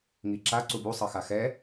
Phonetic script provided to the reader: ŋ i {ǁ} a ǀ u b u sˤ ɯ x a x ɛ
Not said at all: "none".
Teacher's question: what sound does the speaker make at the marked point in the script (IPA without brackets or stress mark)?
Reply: ǁ